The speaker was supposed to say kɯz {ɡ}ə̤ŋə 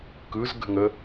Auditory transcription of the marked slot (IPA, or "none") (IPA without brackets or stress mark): ɡ